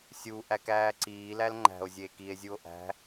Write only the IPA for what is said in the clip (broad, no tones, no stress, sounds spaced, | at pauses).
sʲ u ʔ æ k æː ǀ iː l æ l ŋ͡ǃ æ̤ o̯ zʲ eː k i e̯ zʲ u o̯ ʔ æ̤